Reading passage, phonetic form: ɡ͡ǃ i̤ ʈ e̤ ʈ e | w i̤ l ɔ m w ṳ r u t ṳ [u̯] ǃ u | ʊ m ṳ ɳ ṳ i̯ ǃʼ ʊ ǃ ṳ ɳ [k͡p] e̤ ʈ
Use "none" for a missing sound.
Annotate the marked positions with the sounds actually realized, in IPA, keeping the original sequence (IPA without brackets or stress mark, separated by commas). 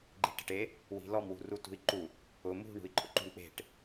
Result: i̯, k͡p